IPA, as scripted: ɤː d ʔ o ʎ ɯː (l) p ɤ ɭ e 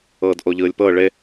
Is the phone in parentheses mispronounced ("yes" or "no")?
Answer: yes